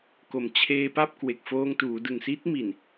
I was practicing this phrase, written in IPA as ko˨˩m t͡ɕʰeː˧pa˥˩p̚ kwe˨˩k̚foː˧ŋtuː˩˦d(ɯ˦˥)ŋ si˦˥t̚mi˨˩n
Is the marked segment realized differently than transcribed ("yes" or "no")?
yes